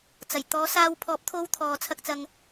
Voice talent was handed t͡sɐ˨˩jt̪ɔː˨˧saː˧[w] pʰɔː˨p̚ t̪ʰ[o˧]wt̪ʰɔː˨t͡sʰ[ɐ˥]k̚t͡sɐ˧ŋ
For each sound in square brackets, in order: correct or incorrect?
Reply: correct, correct, incorrect: ɐ˧

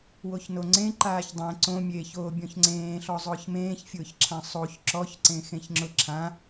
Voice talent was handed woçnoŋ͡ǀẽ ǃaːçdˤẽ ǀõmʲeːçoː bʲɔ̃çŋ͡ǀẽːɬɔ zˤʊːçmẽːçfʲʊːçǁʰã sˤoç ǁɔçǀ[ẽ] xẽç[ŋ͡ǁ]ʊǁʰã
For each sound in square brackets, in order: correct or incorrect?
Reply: correct, correct

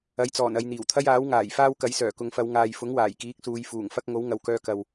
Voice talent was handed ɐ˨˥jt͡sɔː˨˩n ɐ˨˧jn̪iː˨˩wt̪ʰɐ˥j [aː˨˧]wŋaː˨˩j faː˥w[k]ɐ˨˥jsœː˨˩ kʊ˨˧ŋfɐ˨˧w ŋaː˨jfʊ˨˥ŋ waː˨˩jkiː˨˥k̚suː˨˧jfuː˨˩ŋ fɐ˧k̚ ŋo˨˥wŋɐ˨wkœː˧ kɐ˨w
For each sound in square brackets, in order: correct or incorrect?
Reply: incorrect: aː˨˥, correct

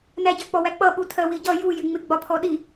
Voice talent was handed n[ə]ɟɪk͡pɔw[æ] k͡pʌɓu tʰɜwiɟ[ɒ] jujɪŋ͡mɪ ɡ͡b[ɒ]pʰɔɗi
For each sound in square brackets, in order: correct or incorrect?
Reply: incorrect: æ, correct, incorrect: ʌ, correct

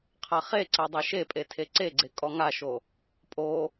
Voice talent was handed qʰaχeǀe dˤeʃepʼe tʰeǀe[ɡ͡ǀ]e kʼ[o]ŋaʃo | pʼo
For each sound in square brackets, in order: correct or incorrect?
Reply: correct, incorrect: ɔ

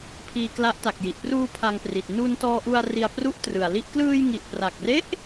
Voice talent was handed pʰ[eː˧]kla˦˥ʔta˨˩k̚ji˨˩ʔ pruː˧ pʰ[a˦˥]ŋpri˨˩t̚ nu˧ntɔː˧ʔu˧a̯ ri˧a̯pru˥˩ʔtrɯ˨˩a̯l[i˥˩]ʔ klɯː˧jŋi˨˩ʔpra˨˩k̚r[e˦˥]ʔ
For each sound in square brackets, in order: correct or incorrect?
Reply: incorrect: iː˧, incorrect: a˧, correct, correct

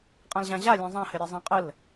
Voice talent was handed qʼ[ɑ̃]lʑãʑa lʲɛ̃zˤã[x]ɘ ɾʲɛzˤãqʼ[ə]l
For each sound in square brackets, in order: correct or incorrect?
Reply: incorrect: ã, incorrect: h, correct

